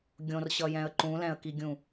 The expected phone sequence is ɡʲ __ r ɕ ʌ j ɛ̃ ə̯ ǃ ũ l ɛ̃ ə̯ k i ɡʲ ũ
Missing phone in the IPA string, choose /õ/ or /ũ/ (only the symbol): õ